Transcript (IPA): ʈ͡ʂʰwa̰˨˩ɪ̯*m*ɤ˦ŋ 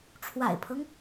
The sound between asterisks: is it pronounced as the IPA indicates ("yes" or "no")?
no